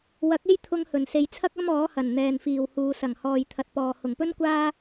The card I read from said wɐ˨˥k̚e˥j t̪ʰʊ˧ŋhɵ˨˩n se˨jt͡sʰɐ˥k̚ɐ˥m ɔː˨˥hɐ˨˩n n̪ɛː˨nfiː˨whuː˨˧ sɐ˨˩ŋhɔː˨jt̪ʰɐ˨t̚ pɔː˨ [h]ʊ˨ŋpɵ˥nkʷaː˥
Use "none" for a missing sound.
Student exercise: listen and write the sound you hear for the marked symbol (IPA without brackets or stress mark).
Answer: h